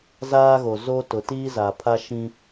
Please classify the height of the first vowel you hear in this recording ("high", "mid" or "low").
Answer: low